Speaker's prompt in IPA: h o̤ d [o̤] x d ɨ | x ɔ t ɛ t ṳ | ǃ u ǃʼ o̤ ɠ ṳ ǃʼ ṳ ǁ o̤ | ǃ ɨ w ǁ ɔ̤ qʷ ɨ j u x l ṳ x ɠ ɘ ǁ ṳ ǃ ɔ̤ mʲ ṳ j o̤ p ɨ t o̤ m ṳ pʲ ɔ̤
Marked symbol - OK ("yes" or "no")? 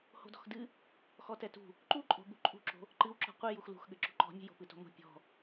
no